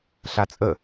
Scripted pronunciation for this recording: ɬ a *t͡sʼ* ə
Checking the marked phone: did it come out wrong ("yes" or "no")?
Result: no